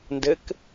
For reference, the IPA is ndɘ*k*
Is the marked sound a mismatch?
no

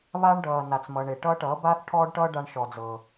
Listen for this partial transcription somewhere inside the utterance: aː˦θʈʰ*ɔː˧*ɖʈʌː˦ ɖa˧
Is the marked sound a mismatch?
yes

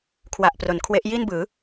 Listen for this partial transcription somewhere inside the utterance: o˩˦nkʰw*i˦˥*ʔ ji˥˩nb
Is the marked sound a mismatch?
yes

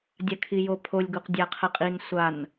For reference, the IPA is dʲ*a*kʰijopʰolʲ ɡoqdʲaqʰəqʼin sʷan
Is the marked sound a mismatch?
no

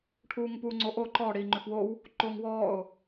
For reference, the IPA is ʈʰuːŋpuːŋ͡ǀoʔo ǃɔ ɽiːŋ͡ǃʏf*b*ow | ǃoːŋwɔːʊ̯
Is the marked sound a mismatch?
yes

